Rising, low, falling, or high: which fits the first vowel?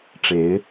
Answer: rising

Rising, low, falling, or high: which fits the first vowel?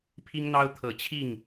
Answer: high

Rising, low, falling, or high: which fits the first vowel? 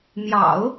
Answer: low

